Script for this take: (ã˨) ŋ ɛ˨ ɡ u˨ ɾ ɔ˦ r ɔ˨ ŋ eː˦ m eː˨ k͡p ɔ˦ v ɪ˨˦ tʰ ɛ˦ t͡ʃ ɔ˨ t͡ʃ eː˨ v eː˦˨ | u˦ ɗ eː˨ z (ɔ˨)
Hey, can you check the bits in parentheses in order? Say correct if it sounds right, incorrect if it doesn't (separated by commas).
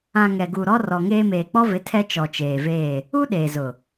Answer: correct, incorrect